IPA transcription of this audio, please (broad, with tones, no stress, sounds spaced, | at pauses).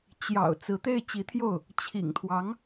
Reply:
t͡ɕ j ɑ̰˨˩ ʊ̯ t͡s ɹ̩˧˥ t̪ e˥˩ ɪ̯ t͡ɕ i˧˥ t̪ʰ j o˥˩ ʊ̯ | t͡ɕʰ ḭ˨˩ ŋ t̪ʰ w ɑ˧˥ ŋ